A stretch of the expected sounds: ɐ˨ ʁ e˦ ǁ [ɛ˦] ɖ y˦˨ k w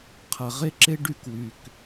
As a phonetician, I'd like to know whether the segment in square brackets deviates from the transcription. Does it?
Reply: yes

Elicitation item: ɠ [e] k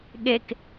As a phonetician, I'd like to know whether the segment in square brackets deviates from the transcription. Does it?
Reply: no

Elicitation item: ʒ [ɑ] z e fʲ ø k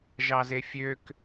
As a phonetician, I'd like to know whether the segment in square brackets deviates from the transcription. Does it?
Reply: no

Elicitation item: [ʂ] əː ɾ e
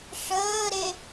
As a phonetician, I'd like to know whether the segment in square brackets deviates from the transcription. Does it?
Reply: no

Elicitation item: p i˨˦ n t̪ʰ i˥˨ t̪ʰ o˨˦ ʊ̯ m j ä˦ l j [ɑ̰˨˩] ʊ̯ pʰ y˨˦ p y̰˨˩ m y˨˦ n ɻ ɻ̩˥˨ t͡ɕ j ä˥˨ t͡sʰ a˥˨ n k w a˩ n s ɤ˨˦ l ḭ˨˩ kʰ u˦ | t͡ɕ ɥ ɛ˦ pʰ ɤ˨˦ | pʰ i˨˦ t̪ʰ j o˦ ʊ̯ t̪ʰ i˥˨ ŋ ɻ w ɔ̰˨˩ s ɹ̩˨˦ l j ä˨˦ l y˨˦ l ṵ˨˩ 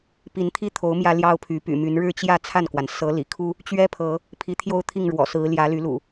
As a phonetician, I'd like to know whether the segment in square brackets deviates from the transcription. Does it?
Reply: yes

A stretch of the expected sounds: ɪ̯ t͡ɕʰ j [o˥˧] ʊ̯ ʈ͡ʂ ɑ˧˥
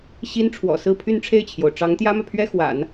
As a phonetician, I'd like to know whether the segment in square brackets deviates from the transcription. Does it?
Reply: yes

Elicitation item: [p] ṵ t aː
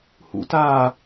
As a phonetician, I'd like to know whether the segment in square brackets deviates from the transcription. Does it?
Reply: yes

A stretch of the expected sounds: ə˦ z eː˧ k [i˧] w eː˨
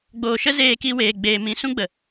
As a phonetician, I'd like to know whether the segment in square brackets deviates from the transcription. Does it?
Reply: no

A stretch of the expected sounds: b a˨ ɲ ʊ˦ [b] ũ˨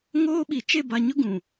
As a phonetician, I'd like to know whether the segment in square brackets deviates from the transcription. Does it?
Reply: yes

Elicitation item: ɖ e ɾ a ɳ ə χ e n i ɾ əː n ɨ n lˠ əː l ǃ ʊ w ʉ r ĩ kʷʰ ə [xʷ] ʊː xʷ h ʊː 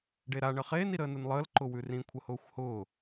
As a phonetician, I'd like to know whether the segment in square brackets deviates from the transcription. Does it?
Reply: yes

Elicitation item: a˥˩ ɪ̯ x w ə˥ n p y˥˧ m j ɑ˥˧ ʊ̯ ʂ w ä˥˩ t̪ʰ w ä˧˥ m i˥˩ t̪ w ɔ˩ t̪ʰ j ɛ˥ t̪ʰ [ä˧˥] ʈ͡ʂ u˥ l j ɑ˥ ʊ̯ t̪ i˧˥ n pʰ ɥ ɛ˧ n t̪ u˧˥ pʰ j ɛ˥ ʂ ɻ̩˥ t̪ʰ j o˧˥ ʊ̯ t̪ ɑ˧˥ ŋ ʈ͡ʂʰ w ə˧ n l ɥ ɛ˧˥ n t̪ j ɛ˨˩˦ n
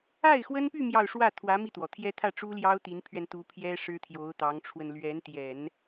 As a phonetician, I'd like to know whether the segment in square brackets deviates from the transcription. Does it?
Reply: yes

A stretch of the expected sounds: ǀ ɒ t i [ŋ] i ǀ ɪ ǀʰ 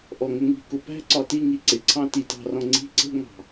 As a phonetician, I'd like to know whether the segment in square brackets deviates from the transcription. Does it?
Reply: no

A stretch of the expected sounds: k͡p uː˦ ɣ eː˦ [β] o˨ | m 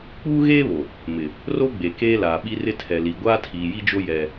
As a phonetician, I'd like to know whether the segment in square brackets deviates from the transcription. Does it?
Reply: no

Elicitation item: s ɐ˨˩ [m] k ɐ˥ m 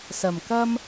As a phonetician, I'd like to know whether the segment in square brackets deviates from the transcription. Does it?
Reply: no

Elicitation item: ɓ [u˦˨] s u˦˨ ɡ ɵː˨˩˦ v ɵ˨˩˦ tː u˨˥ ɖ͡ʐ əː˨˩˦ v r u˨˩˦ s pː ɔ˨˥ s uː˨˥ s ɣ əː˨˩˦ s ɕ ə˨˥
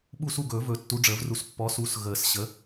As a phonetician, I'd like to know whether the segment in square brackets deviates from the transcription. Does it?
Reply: no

